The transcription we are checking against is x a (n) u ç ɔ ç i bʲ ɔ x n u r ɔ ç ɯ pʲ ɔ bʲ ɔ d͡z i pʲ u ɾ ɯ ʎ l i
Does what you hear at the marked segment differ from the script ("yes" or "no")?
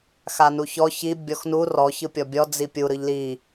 no